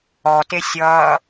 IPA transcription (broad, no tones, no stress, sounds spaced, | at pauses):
ɔ t e sʲ ʌː